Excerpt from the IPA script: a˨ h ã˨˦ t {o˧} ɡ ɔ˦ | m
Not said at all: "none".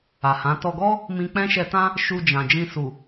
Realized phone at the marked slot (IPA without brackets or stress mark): ɔ˧